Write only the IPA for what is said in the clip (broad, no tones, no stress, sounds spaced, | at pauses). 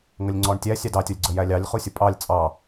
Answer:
ŋ ə lʲ ŋ͡ǀ ɔ ɳ tʲ æ sʲ ɑ d ɑ tʲ ɔ lʲ ɡ͡ǀ ə j æ lʲ ɑ lʲ χ u sʲ ə pʼ ɑ lʲ t͡sʼ ɑ